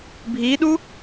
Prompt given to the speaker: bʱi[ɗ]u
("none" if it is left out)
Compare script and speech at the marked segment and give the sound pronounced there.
ɗ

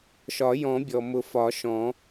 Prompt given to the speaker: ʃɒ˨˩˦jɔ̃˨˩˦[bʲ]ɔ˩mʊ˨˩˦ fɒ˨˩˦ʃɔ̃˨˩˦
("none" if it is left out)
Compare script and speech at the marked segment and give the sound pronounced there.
bʲ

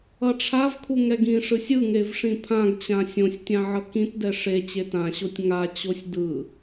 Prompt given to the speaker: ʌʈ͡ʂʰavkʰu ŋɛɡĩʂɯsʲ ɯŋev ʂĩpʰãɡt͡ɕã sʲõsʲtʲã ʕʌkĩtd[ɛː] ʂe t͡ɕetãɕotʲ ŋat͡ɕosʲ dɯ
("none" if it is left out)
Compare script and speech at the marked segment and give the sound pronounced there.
ɛ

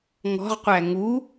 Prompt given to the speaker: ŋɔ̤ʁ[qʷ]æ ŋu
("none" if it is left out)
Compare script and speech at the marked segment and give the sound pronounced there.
qʷ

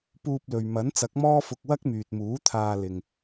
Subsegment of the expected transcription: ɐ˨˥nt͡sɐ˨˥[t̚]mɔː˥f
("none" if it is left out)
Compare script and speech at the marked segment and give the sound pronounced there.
k̚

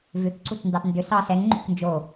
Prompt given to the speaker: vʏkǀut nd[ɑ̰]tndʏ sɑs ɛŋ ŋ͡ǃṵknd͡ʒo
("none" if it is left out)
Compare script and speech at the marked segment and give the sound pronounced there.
ɑ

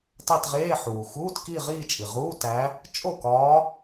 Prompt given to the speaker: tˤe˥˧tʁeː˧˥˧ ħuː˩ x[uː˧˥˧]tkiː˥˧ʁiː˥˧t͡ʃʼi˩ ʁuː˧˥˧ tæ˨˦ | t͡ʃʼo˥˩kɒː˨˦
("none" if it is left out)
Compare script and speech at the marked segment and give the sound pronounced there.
uː˧˥˧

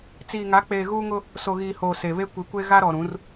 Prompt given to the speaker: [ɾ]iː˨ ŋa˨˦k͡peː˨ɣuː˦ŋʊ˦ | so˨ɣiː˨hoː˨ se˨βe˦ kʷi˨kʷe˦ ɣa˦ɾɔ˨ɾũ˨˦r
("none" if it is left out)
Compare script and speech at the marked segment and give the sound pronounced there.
t͡s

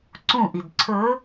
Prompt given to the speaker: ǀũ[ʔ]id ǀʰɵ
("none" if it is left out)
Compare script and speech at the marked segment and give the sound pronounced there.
ʔ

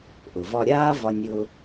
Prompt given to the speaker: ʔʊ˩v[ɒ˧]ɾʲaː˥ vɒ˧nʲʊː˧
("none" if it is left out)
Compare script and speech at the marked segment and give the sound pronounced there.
ɒ˧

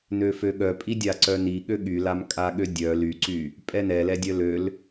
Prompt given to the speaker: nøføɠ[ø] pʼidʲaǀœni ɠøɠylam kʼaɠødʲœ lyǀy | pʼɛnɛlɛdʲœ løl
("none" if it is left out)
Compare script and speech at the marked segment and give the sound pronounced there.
œ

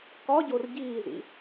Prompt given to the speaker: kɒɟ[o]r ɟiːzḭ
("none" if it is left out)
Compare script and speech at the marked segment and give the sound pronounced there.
o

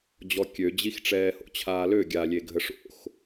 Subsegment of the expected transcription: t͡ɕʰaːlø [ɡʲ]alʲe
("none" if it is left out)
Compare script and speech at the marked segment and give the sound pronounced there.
ɡʲ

